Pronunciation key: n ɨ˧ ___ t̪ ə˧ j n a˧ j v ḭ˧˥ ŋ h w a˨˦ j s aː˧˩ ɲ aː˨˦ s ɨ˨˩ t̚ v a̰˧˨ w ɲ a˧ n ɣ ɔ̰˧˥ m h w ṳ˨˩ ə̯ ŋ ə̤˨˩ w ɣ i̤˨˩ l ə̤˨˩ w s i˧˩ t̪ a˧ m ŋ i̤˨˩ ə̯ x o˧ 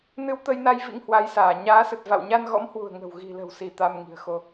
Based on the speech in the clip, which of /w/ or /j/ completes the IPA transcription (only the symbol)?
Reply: w